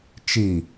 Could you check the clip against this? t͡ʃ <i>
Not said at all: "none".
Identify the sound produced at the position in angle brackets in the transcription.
i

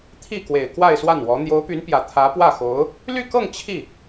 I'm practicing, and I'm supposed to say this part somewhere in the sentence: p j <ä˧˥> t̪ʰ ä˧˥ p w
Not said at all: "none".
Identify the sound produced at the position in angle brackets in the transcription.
ä˨˩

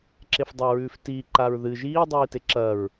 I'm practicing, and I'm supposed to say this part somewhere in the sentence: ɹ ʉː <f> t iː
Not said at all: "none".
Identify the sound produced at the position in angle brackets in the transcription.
f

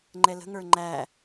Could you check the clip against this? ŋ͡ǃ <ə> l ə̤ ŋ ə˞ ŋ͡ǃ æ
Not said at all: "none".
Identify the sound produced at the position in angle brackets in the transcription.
ɛ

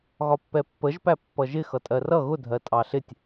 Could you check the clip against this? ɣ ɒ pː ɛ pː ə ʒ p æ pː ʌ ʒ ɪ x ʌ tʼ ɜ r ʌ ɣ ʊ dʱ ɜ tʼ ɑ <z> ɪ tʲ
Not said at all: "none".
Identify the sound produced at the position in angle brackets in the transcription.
ɬ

